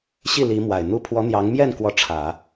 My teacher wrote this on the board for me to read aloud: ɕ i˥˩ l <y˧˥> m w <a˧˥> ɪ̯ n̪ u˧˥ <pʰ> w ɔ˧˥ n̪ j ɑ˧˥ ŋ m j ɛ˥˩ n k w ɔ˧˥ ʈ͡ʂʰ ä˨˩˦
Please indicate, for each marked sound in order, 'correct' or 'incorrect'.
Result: incorrect: i˧˥, incorrect: a˨˩, correct

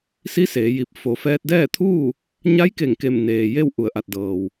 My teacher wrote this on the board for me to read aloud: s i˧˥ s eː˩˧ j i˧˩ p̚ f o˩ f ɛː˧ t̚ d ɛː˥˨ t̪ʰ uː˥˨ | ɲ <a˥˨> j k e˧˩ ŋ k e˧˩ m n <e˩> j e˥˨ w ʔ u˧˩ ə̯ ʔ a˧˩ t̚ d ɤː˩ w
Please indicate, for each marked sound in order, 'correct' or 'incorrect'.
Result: incorrect: a˧˥, incorrect: eː˩

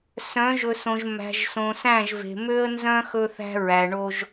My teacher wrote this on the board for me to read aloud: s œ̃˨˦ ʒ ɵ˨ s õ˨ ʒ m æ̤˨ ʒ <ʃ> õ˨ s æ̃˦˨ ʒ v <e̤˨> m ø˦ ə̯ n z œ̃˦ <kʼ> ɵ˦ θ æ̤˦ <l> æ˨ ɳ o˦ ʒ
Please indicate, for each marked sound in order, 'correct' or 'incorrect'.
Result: incorrect: s, correct, incorrect: x, incorrect: ɹ

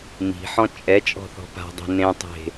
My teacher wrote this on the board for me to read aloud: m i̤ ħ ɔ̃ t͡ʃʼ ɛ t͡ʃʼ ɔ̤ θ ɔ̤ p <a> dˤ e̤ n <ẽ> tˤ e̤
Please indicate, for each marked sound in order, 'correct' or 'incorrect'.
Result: incorrect: a̤, correct

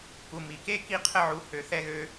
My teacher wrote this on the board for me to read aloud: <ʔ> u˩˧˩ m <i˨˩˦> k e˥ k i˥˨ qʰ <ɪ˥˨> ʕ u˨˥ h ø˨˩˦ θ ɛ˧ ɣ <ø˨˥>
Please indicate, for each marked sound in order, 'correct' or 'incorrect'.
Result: incorrect: k, correct, incorrect: ə˥˨, incorrect: ø˧

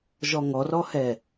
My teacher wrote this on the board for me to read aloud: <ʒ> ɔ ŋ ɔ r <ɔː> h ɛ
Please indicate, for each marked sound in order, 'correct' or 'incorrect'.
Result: correct, incorrect: ɔ

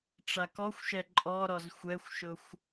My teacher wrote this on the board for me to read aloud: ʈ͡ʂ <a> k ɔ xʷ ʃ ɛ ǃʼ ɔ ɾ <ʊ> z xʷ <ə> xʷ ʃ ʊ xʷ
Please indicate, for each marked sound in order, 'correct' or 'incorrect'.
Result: correct, incorrect: ɔ, incorrect: ɛ

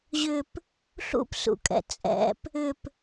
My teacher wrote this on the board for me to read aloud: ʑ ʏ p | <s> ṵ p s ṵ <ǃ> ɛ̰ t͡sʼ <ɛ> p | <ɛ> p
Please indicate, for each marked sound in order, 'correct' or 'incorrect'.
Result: incorrect: ɬ, incorrect: kʼ, incorrect: ɛ̰, incorrect: ʏ

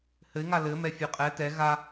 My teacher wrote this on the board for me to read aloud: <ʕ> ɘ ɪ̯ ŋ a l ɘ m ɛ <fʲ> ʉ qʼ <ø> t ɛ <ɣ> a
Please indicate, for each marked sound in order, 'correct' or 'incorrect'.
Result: incorrect: h, correct, incorrect: ɛ, correct

